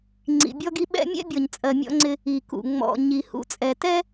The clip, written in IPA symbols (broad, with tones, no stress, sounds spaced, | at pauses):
ŋ͡ǀ ḭ˨ bʲ ɔ˦ ɡ i˦ ɓ ɛ̰˦ mʲ ɛ̰˦ bʲ ɔ˨ ɲ t͡sʼ ɜ˨ mʲ ɔ̰˦ ŋ͡ǀ ɪ˦ | i˨ k ṵ˨ ŋ͡m ɔ̰˨ ɲ i˨ h ṵ˨ t͡sʼ ɛ˨ t ɛ˦